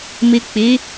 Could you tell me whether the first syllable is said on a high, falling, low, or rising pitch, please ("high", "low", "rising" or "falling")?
low